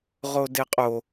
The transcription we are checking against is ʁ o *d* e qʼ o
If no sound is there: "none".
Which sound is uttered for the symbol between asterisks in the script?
d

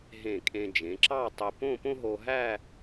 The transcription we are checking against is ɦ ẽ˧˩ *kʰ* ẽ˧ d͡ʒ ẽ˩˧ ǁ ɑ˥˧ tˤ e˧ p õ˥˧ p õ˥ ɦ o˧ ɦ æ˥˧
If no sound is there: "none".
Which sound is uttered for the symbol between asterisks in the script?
kʼ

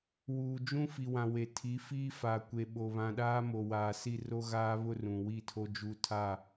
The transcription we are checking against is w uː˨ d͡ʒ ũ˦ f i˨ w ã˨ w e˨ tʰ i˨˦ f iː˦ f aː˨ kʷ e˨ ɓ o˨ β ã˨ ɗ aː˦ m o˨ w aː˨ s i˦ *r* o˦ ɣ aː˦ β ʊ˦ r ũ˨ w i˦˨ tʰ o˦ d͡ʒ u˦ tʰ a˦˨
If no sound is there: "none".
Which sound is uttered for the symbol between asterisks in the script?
r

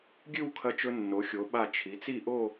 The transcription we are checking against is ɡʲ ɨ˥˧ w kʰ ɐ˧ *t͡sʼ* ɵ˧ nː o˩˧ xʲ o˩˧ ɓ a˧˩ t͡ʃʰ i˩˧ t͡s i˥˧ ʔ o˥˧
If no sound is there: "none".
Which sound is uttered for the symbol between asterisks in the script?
t͡ʃ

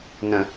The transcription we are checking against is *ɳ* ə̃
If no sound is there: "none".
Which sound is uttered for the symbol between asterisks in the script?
n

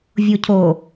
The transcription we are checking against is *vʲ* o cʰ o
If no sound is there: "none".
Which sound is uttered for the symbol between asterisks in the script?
vʲ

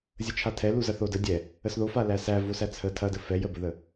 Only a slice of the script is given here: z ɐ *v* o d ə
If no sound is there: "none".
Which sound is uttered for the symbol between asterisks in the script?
θ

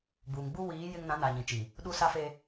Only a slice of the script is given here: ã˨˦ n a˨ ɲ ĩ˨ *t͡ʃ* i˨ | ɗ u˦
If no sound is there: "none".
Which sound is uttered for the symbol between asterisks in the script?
t͡ʃ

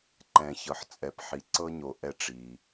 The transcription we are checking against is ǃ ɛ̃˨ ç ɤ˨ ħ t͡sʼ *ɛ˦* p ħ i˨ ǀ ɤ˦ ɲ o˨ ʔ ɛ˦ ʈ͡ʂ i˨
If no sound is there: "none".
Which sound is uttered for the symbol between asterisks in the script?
ɛ˨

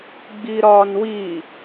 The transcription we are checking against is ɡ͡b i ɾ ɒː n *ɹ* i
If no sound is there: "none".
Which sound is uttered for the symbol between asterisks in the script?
w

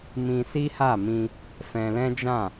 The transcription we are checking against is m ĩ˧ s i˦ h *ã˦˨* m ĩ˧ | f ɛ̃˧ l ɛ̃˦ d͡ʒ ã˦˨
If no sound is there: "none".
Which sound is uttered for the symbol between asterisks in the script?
a˦˨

